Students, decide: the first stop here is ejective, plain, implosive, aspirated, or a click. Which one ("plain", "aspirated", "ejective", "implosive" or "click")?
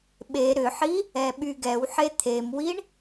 implosive